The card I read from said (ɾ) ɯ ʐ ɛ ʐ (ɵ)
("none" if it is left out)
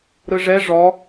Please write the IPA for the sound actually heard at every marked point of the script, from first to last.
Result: ɾ, ɔ

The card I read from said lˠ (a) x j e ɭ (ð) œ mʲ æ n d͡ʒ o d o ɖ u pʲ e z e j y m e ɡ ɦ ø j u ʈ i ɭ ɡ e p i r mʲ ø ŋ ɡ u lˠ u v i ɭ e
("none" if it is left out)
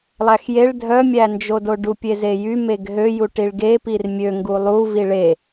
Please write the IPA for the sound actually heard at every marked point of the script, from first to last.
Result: æ, dʱ

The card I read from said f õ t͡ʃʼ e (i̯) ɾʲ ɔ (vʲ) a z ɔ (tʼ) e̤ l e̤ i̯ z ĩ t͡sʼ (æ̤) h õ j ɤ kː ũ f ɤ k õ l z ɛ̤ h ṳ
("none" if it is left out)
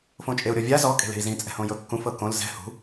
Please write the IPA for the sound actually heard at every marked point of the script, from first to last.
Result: u̯, vʲ, kʼ, ɛ̤

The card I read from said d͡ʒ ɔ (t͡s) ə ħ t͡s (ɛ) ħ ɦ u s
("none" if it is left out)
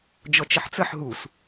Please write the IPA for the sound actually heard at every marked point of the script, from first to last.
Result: t͡ʃ, ə

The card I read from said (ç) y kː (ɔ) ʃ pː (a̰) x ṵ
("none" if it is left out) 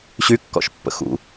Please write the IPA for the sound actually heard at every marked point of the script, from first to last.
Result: ɕ, ɔ̰, ə̰

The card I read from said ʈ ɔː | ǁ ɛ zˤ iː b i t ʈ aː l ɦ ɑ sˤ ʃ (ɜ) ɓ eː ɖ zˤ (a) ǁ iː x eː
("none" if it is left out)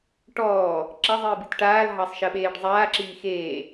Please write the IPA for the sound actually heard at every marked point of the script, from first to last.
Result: ɜ, aː

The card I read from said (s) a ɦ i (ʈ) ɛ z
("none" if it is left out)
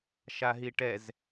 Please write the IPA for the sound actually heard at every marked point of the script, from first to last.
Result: ʃ, ʈ

